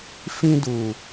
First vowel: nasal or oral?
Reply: nasal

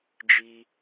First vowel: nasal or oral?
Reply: oral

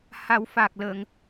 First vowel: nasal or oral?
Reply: oral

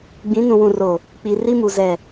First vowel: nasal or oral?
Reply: nasal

